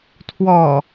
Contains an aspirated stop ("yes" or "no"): yes